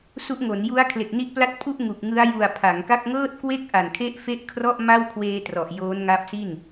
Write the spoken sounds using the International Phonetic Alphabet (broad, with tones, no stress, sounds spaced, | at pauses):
s u˦˥ ʔ ŋ o˩˦ n j u˦˥ a̯ kʰ l e˨˩ k̚ n i˥˩ ʔ p l a˥˩ t̚ pʰ u˥˩ ʔ ŋ u˨˩ k̚ ŋ ɯ˦˥ a̯ j u˨˩ a̯ pʰ a˩˦ ŋ k a˥˩ k̚ ŋ ɤː˥˩ t̚ k w e˥˩ k̚ ʔ a˨˩ n kʰ e˦˥ ʔ f e˦˥ ʔ kʰ r ɔ˥˩ ʔ m a˥˩ w kʰ w eː˧ t r ɔ˨˩ ʔ j oː˦˥ n ŋ a˦˥ p̚ s i˥˩ n